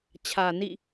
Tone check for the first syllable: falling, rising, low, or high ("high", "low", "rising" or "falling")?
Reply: low